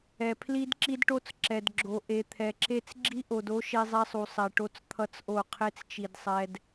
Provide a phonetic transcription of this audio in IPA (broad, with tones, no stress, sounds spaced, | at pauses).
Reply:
ɛ˨ pʰ l i˦ d ǁ i˦ d ʈ o˦ t͡s ǁ ɛ˨ d ɡ͡ǁ o˨ ʔ e˨ t̪ʰ ɛ˨ ǁ e˦ t͡s ɡ͡ǁ i˦ ʔ o˨ d o˦ ʃ e˦ zˤ ɛ˦ sˤ u˨ sˤ ɛ˨ ʈ o˦ t͡s t̪ʰ ʌ˦ t͡s ʔ o˦˨ qʰ e˦ t͡s t͡ʃ i˨ d sˤ ɛ˨ d